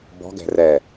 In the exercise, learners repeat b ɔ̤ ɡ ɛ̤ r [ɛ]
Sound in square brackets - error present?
no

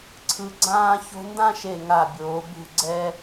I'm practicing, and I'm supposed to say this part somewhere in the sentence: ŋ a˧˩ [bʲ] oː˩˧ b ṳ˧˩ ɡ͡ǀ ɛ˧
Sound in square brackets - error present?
no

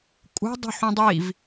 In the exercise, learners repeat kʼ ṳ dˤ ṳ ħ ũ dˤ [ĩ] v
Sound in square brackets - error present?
yes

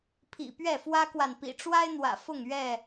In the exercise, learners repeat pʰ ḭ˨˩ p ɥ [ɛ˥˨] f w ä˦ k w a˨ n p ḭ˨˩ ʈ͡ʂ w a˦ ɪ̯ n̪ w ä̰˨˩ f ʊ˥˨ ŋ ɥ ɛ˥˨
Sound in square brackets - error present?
no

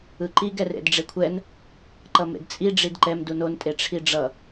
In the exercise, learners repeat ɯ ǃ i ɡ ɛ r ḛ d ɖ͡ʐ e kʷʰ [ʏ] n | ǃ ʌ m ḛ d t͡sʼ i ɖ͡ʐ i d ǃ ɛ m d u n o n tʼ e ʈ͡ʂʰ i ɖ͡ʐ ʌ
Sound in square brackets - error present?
yes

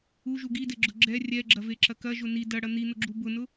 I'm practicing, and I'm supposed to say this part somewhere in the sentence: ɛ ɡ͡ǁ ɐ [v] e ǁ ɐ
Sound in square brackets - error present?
no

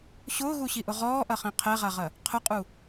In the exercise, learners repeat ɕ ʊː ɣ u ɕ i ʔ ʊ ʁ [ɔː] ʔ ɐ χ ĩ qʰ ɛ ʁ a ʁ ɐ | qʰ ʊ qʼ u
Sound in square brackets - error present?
no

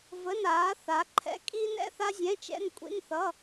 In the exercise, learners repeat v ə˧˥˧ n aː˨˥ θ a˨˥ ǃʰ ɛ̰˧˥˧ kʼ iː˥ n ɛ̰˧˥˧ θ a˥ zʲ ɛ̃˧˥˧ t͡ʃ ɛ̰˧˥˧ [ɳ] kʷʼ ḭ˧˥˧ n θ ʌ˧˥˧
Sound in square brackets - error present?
yes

